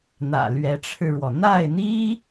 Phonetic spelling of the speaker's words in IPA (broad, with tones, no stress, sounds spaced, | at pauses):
n̪ ä̰˨˩ l ɥ ɛ˧˥ ʈ͡ʂʰ ɻ̩˧ ɻ w ɔ˩ n̪ a˥˩ ɪ̯ n̪ i˥